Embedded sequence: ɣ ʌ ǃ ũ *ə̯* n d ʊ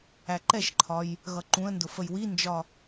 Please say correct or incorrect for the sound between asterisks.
correct